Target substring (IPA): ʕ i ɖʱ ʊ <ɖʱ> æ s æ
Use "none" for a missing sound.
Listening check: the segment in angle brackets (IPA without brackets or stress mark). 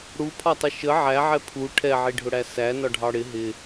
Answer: ɽ